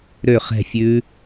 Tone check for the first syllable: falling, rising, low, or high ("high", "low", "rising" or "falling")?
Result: falling